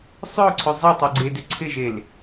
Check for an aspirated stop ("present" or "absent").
present